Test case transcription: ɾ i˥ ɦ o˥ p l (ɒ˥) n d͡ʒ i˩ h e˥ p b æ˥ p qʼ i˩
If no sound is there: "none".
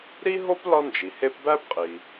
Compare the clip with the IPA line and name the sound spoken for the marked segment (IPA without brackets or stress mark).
ɒ˥